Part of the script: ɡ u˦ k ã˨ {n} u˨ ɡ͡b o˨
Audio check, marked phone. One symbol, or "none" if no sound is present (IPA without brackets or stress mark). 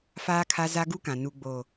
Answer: n